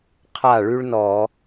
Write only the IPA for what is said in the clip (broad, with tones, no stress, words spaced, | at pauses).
qʰa˥˩ɭy˥ɭnɔ˧˩˧